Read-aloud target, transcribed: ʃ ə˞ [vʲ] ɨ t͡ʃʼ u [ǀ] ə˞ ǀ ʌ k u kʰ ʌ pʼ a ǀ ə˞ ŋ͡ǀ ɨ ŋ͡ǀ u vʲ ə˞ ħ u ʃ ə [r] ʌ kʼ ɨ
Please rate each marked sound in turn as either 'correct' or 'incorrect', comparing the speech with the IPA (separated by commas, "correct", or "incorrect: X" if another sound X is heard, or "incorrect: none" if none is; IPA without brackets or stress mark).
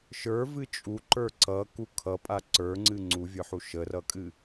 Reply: incorrect: v, incorrect: ǃ, correct